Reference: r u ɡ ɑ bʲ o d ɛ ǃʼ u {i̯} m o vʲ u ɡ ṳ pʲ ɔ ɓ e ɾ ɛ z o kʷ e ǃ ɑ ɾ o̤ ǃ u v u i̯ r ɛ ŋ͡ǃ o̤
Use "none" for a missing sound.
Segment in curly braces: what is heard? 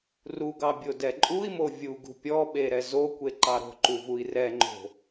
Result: i̯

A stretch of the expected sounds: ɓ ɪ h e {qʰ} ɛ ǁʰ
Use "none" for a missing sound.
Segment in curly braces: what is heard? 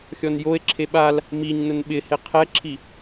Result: qʰ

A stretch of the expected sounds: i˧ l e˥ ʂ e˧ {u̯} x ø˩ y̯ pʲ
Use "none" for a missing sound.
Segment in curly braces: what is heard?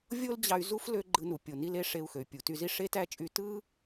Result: u̯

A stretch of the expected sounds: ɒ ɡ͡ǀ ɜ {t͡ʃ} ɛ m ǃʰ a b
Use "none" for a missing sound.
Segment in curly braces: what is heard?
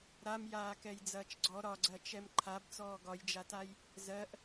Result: t͡ʃ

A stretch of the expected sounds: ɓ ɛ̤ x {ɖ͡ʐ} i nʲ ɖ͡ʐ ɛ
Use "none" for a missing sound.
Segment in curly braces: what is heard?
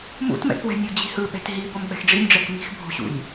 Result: ɖ͡ʐ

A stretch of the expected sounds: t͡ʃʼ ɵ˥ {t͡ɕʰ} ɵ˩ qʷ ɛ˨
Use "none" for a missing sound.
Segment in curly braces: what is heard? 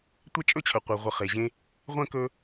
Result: t͡ɕʰ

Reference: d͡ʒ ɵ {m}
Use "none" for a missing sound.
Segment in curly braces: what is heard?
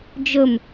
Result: m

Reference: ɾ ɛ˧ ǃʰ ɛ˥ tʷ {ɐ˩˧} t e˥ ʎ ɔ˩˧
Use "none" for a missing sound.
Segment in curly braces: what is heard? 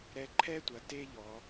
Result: ɐ˩˧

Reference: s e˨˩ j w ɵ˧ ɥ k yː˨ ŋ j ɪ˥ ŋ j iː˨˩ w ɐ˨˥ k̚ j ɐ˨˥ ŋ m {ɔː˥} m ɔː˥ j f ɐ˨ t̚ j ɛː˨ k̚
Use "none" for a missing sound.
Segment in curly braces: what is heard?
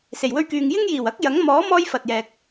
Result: ɔː˨˥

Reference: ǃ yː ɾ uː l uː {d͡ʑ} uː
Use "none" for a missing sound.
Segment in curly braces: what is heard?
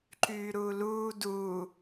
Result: d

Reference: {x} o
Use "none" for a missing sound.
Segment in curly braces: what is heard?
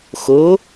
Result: x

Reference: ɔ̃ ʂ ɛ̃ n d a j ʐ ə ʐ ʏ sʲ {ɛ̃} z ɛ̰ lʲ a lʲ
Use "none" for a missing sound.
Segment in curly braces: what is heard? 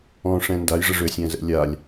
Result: ɛ̃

